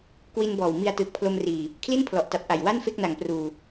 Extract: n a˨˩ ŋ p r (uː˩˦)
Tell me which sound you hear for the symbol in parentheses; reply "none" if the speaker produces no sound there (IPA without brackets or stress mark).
uː˨˩